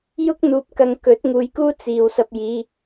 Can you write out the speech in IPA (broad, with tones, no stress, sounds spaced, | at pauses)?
j ʊ˥ k̚ n̪ uː˨ p̚ k ɐ˨˧ ŋ k ɵ˨˥ t̚ ŋ uː˨˧ j k uː˥ t͡s iː˨ w s ɐ˧ p̚ j iː˨˧